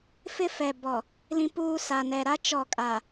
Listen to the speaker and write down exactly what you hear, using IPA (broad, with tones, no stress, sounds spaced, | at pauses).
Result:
f ɪ˦ f ɛ˨ b ɔ˨ | l ĩ˦ p uː˦ s a˨ n ɛ˨ ɾ a˦ t͡ʃ ɔ˦˨ kʼ a˨